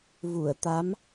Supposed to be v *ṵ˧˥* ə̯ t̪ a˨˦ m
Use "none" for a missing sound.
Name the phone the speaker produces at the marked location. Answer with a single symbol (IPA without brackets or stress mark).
u˧˩